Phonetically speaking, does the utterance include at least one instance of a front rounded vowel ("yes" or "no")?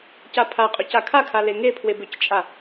yes